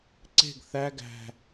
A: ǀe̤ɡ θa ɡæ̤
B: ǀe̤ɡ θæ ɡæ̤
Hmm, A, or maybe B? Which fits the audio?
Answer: B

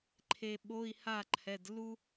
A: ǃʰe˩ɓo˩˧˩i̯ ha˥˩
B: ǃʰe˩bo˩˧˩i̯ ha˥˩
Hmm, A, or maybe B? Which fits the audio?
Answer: A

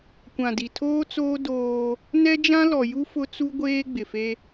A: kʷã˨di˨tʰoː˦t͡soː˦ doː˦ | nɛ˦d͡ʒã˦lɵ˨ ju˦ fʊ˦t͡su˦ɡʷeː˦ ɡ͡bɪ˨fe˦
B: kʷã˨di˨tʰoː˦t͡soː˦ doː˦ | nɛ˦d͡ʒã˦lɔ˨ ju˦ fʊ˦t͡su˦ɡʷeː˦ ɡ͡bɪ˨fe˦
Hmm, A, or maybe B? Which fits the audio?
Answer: B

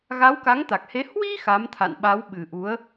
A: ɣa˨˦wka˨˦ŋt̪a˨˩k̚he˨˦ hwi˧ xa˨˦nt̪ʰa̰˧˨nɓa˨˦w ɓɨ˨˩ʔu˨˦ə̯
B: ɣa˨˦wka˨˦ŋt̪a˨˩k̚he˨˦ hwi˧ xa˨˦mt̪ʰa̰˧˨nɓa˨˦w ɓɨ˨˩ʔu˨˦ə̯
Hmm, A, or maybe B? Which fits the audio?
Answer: B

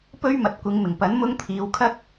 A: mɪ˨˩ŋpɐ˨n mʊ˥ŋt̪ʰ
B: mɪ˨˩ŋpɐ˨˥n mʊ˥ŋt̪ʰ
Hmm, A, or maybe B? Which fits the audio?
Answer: B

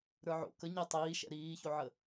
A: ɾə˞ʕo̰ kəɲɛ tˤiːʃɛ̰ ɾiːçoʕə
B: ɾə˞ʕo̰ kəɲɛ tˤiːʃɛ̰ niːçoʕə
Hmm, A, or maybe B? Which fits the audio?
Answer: A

